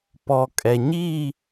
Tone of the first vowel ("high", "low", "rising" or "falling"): low